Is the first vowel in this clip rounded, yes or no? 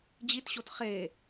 no